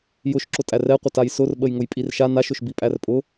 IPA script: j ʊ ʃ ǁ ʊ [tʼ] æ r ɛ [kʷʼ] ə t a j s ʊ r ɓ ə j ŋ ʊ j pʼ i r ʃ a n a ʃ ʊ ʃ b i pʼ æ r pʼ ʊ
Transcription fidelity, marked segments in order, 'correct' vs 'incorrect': correct, incorrect

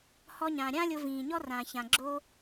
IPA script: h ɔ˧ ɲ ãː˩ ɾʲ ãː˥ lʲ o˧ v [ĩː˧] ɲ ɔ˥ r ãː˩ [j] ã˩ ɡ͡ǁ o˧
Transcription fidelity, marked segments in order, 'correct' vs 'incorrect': incorrect, incorrect

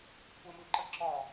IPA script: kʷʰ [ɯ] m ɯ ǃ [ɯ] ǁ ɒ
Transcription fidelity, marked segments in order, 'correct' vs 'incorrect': incorrect, incorrect

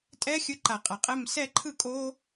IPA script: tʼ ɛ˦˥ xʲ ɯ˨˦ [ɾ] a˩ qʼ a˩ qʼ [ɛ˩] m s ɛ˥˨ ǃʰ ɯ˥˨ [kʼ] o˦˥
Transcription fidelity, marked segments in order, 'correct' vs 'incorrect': incorrect, incorrect, correct

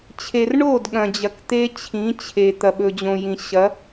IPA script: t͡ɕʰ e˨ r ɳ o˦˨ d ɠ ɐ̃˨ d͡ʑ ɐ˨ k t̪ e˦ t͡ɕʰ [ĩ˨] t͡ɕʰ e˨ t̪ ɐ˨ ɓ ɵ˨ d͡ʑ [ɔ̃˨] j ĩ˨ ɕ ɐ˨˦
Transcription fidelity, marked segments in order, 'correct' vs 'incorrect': incorrect, incorrect

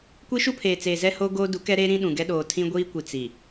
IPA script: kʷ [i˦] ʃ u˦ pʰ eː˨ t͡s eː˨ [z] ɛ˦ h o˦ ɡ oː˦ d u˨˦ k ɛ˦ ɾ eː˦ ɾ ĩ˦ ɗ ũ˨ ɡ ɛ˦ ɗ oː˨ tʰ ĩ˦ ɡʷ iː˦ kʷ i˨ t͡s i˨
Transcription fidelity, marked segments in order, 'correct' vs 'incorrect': correct, correct

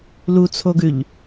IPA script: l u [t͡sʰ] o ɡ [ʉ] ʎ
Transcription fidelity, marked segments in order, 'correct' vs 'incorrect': correct, correct

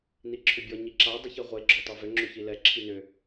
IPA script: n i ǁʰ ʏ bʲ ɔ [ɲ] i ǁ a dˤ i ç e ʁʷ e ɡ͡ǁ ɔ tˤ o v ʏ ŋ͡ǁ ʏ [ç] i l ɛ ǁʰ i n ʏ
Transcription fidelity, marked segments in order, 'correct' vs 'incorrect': correct, correct

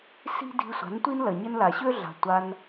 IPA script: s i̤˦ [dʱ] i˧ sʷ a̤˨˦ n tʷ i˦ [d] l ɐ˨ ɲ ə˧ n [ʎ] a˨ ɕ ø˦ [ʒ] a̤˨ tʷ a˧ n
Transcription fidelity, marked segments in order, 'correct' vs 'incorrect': correct, incorrect, incorrect, incorrect

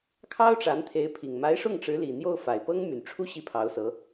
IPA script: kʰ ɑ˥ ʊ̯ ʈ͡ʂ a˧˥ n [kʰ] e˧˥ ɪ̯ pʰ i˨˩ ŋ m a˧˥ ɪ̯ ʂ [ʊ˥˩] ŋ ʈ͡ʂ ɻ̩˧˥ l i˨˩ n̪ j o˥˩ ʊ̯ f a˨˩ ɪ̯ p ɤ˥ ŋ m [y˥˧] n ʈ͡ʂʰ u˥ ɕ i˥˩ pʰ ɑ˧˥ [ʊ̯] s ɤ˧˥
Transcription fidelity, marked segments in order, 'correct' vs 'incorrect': incorrect, correct, incorrect, correct

